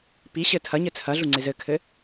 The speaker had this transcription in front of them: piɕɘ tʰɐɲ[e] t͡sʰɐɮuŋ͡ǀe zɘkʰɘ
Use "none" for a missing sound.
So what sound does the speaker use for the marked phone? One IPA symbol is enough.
ɘ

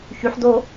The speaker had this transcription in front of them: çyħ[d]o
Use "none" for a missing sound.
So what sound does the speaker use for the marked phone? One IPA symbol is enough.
d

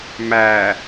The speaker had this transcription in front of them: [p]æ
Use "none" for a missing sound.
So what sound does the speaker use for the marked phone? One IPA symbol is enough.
m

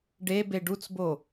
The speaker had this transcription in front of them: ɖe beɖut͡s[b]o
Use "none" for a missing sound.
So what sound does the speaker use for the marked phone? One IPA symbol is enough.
b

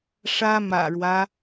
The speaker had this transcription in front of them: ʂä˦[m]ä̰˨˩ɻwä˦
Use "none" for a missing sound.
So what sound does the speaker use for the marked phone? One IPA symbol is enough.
m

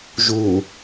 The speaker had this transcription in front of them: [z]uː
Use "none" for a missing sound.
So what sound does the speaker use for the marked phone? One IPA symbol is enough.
ʒ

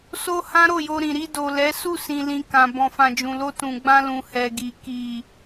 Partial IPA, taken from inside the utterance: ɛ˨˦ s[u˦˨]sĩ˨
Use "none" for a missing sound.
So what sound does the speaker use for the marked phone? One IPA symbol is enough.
u˦˨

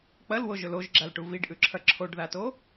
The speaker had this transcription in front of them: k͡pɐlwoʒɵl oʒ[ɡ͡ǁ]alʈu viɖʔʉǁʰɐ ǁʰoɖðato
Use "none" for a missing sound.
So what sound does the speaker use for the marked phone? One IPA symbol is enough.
ɡ͡ǁ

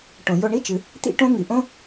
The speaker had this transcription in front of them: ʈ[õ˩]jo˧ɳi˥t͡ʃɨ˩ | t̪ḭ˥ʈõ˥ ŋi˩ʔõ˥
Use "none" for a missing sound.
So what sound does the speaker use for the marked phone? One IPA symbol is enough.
õ˩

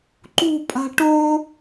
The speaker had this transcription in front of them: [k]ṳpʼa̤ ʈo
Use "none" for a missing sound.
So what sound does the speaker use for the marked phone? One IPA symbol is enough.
ǃ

